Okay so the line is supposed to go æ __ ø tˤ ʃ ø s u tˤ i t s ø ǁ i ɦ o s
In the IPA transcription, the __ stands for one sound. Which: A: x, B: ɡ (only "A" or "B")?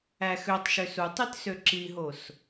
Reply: A